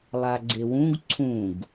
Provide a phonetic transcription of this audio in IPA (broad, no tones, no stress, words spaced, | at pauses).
lˠaɡ͡ǀewũɡ ǀʰũɡ